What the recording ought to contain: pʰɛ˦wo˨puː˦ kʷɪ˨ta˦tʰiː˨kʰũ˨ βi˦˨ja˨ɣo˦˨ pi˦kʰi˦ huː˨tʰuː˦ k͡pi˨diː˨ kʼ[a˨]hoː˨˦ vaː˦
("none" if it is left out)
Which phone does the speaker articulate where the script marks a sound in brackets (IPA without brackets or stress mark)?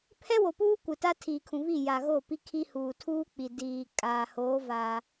aː˨